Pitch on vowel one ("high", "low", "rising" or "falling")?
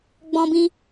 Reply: high